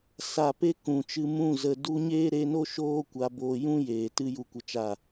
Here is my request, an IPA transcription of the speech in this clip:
s a˨ p e˦ k ũ˨ t͡ʃ ɨ˧ m ũ˦˨ z ə˨ d u˧ ɲ eː˦ ɾ e˧ n o˦ ʃ oː˦ kʷ a˧ b oː˧ j ũ˦ j eː˨ t ɨ˧ j u˨ kʷ ə˨ t͡ʃ a˨

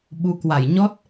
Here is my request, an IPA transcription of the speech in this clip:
ɓ u˨˦ k w a˧˩ j ɲ ɔ˦˥ t̚

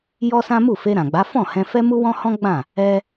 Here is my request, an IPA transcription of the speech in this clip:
j ɔ˦ s ã˦ m u˦˨ f e˧ ɾ ã˨ ɡ͡b a˨˦ f ɔ̃˦˨ h ɛ̃˧ f ɛ˦ m u˦ w ɔ̃˦ h ɔ̃˦ ɡ͡b ã˦˨ | ɛ˦

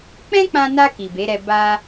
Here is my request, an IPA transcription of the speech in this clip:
k͡p ɛ̃˦ k͡p ã˧ n a˧ k i˨ b e˨˦ ɾ ɛ˧ b a˦

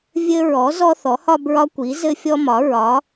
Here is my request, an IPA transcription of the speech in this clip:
vʲ ɘ˦ ɹ ɔ˩˥ z ɔ˦ θ ɔ˩˥ h ɒ˦ b ɹ ɒ˦ kʷ i˩˥ z ɘ˦ fʲ ɔ˦ m ɒ˩˥ ɹ ɒ˩˥

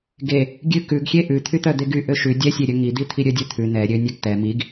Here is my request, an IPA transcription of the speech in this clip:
ɡ e | ɡʲ ʉ k ʉ ɡ xʲ e ʔ ʉ t̪ʰ y t̪ œ d̪ e ɡ y ʔ ø ʃ ʉ dʲ ɛ sʲ e ɾʲ œ ŋ i d̪ i t̪ʰ i ɾʲ œ dʲ œ t̪ʰ ʉ n ɛ ɾʲ ø nʲ ɛ ɡ t̪ ɛ m i ɡ

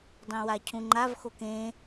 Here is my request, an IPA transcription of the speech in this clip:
dˤ ẽ w a cʰ ũ ŋ͡ǃ a v x o k ẽ

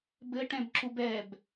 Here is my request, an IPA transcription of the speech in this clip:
b ɘ ʈ ɛ̃ b ǁ u b ɛ b

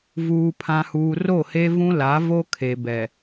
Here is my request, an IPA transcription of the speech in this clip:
v uː˨ pʰ ã˨ h uː˨ r o˦˨ h e˦ v ũ˦ l a˨˦ v o˦ kʰ e˨ b ɛ˨

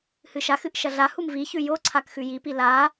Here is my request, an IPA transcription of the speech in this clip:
h ɨ ʃ a x ɨ ʔ ʃ ɐ ɮ a h u m v i ç ʉ j o ǀʰ a k x ʉ j i p i l a

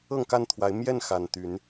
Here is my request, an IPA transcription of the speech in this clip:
ɤ˥˨ ŋ k a˥˨ n t̪ʰ w a˨˦ ɪ̯ m j ɛ˥˨ n x a˨˩ n t̪ y˨˦ n

